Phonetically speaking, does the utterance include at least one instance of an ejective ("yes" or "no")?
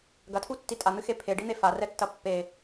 yes